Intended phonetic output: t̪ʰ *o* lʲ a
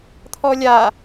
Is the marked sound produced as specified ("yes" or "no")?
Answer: no